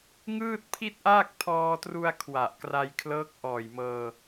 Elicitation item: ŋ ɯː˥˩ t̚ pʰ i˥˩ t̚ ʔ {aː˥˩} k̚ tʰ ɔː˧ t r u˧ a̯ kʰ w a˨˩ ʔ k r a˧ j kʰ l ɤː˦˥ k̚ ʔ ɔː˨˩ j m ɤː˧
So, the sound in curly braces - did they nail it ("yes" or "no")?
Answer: yes